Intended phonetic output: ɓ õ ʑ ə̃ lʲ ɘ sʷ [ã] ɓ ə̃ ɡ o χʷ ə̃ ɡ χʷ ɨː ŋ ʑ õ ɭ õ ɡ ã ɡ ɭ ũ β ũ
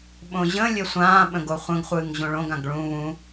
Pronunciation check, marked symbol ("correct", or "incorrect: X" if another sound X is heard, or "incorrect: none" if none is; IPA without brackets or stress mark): incorrect: ãː